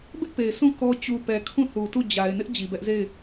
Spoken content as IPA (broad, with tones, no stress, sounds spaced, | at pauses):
b ɪ˦ ʔ p e˨ ɪ̯ s ũ˦˨ k ɔ˦ t͡ɕ u˨ p ɛ˨ kʰ ũ˦˨ θ u˨ t u˦˨ d͡ʑ a˨ ɪ̯ n ɪ˦ ʔ d͡ʑ i˨ b ɛ˦ ʔ z e˦˨ ɪ̯